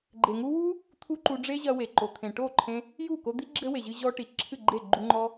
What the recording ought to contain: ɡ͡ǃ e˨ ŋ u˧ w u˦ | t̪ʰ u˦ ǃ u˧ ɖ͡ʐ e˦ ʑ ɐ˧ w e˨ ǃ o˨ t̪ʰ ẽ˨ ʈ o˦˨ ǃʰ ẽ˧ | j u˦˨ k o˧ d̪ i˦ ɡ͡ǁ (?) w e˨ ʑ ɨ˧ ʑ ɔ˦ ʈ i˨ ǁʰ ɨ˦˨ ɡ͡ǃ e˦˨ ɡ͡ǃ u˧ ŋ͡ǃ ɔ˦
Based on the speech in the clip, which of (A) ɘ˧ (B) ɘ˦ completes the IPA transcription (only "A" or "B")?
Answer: B